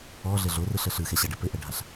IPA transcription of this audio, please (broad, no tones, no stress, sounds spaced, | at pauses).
ɔ ɮ ɘ ɮ o r ɯ ɬ ə ɬ ɯ x ɛ ɕ a ɖ ɛ p ɘ ʔ ə ɖʱ a ɬ